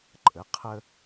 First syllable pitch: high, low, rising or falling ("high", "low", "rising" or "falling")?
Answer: rising